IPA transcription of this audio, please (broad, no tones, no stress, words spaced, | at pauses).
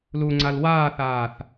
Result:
luŋ͡ǀal waːθaːθ